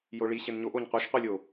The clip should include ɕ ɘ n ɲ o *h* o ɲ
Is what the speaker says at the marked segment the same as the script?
no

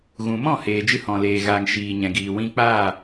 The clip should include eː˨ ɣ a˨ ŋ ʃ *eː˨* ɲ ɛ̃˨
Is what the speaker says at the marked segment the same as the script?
no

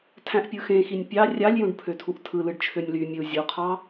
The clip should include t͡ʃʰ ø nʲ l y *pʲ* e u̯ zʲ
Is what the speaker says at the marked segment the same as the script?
no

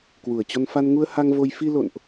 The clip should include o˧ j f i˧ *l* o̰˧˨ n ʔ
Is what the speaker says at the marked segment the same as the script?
yes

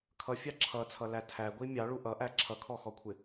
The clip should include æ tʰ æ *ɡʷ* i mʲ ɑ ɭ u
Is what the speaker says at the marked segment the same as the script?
yes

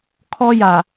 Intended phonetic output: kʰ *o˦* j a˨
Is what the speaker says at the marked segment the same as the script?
no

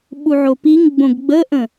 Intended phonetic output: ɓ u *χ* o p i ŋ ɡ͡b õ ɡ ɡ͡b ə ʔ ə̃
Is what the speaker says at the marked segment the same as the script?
no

